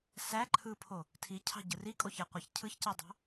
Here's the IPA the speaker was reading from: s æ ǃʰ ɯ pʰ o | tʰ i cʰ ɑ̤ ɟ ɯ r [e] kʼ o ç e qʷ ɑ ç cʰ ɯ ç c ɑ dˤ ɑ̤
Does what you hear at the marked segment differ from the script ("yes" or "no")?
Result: yes